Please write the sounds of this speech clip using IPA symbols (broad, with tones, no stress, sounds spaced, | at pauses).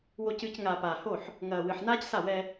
w o˨ c ɨː˨ c ŋ aː˨ p aː˨ h o˦˨ ħ | ŋ ɐː˨ w ɨ˨ ħ n aː˦ c s a˦˨ w ɛ˦